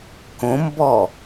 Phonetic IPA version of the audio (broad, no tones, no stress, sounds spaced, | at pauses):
k õ m b ɔ